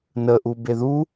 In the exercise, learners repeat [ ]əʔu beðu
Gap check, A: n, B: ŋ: A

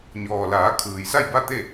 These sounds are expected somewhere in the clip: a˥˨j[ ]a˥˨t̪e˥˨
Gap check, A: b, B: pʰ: A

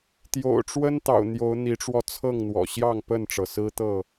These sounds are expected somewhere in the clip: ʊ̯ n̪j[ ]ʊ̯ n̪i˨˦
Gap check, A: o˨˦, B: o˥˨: A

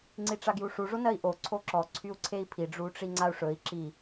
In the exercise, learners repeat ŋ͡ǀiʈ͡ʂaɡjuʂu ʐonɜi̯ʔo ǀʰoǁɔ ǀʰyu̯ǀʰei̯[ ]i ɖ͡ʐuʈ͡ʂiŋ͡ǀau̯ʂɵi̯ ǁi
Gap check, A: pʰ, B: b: A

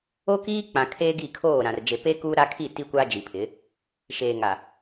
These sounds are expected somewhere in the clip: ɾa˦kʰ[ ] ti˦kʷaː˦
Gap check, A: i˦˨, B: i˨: A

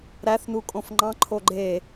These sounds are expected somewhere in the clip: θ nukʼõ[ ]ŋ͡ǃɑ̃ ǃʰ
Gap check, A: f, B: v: A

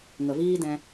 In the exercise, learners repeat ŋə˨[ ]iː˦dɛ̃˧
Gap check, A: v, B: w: A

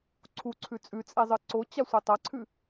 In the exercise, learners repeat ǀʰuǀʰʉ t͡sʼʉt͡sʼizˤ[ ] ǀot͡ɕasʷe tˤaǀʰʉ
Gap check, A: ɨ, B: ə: A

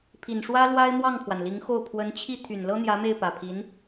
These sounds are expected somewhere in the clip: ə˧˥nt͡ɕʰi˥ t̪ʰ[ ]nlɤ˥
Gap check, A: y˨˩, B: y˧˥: A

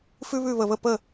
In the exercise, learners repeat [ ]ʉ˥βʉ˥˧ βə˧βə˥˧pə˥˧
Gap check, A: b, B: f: B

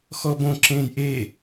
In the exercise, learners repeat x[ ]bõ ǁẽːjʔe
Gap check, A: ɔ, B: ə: A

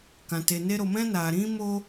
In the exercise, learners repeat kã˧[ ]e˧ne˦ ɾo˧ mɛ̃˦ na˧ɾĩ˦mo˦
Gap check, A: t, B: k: A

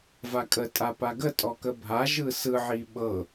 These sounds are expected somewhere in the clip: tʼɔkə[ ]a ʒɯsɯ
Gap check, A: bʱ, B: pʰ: A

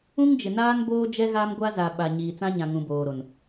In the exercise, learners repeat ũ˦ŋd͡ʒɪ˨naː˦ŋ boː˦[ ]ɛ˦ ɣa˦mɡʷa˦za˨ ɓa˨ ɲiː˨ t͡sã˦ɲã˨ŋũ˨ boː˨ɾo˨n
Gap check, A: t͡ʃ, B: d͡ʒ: B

